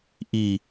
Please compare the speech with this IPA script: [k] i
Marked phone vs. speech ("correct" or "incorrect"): incorrect